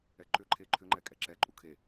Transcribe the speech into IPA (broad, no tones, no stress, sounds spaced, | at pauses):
ɛ ǃ ʏ ǃʰ e ǃʰ ʏ ŋ͡ǃ ɛ kʼ ɛ ǁ ɛ ǃʼ u kʰ e